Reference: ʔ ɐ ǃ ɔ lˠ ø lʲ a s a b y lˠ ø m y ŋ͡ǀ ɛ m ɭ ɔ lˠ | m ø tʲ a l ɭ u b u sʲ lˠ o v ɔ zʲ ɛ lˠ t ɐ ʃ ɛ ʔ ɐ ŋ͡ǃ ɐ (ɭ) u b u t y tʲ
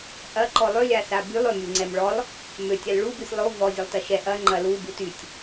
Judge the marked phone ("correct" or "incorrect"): incorrect